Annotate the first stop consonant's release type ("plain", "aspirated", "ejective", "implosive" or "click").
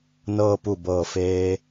plain